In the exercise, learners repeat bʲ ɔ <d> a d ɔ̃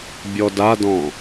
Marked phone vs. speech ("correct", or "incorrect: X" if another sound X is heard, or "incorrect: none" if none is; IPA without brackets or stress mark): correct